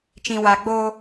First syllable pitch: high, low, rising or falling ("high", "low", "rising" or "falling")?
low